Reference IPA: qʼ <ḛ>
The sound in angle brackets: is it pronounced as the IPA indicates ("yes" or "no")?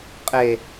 no